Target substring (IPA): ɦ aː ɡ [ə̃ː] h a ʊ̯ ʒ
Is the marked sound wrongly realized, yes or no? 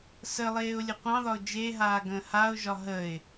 no